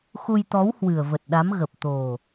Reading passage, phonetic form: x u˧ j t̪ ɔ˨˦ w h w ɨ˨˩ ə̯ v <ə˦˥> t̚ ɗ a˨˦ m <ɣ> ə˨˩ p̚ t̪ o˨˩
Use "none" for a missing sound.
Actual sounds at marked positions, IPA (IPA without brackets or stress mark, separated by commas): ə˨˩, ɣ